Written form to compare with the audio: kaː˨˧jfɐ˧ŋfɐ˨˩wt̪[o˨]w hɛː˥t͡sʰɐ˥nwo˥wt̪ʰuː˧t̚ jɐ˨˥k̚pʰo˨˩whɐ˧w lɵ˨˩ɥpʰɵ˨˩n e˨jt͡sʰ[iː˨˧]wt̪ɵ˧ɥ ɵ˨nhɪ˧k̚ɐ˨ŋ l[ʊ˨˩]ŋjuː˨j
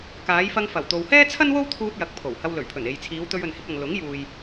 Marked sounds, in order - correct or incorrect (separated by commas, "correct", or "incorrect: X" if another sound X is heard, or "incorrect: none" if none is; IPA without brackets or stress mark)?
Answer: correct, correct, incorrect: ʊ˨˥